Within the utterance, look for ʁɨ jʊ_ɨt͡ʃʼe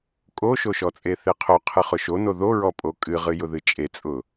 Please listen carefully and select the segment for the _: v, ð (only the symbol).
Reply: ð